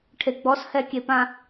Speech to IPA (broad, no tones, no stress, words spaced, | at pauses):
ʈʰeɡ͡bɔs hɛkʲepã